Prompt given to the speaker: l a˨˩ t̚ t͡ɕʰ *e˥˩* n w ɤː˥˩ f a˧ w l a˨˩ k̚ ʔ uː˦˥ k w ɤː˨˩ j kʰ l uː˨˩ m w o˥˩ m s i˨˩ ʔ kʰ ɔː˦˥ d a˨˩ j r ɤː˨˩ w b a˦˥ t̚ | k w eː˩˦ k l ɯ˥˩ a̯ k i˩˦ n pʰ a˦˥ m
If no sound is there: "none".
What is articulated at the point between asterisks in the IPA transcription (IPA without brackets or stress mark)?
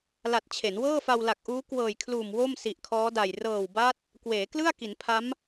e˩˦